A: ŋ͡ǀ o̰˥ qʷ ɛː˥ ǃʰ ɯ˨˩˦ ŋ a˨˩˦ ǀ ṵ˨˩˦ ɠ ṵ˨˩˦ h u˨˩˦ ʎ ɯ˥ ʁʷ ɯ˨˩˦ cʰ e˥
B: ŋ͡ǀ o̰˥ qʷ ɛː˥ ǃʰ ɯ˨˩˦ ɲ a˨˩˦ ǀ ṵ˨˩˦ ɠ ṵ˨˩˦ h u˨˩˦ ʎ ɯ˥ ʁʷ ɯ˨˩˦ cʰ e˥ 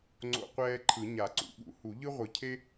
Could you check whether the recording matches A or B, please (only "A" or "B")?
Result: B